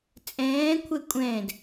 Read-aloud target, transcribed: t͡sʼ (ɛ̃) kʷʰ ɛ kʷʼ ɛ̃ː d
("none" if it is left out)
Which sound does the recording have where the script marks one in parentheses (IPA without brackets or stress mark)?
ɛ̃ː